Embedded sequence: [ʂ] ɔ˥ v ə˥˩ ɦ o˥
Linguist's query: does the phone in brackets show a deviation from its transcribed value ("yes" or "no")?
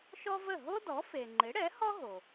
yes